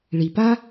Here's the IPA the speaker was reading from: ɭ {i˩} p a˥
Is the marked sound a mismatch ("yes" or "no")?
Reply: no